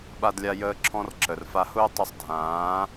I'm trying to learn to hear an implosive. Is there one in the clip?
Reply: yes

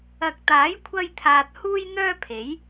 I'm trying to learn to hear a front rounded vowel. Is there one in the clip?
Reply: yes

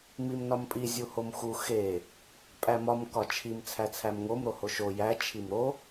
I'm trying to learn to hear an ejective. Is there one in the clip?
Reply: yes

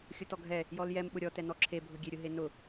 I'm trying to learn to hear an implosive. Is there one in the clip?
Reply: yes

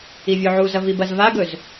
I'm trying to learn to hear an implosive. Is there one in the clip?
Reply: no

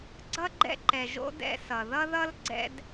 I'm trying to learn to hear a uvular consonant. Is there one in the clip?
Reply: no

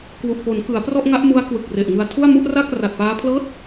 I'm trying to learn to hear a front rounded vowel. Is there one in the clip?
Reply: no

